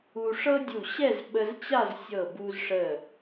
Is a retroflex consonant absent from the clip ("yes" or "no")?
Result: no